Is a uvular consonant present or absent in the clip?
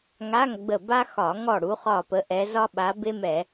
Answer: present